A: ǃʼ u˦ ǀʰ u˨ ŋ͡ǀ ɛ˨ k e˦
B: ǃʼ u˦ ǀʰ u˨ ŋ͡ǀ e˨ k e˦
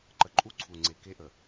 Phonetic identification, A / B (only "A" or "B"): B